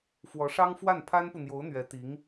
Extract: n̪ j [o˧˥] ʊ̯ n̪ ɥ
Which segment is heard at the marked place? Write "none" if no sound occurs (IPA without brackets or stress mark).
o˧˥